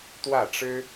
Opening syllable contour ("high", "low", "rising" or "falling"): falling